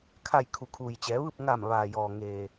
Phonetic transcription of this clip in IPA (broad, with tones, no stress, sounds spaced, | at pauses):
kʰ a˧˩ j kʰ u˩ kʰ uː˩ j t͡ɕ ɛː˩˧ ʋ ɯː˥˨ p̚ ŋ a˧˩ m ʋ aː˩ j ɔː˩ ŋ eː˩